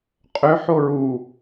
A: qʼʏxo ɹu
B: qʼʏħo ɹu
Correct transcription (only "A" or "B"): B